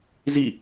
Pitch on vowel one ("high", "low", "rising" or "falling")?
falling